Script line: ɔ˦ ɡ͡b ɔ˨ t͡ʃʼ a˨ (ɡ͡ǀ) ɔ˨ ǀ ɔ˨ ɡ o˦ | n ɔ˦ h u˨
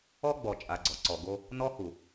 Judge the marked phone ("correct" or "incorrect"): correct